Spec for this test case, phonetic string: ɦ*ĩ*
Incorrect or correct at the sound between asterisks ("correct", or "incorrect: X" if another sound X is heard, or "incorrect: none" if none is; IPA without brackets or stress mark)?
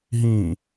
correct